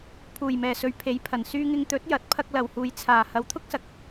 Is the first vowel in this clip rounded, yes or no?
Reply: yes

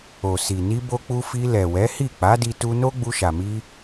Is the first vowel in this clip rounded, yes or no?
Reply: yes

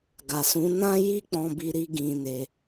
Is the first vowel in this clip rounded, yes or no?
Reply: no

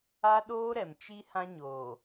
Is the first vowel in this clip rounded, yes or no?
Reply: no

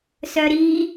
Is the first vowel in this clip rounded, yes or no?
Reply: yes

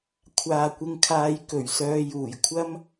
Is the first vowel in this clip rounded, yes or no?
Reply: no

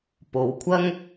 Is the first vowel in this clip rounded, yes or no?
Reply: yes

